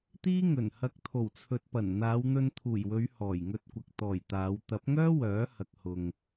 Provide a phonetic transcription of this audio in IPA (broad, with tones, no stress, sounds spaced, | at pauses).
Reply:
t̪ iː˥ ŋ ɵ˨˩ n h ɐ˧ k̚ t̪ʰ o˨˩ w t͡sʰ ɵ˨ t̚ p ɐ˨˩ n n̪ aː˨˧ w n̪ ɵ˧ n t̪ʰ uː˨˩ j w ɵ˨˧ ɥ h ɔː˨˩ j ŋ ɵ˧ t̚ kʷ ɐ˨ k̚ t̪ ɔː˨˩ j t̪ aː˨˧ w t̪ ɐ˨˥ p̚ ŋ œː˥ w œː˨˥ h ɐ˨ k̚ h ʊ˨ ŋ